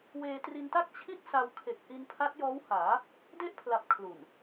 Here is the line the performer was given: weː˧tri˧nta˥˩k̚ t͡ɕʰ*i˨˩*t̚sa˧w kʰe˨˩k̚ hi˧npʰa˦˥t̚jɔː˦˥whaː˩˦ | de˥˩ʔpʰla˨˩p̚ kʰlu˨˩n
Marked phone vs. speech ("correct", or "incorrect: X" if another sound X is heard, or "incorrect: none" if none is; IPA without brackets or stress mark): incorrect: i˥˩